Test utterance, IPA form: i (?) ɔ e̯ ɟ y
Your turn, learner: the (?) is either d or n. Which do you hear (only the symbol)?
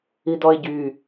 d